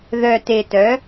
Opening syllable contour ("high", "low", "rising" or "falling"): low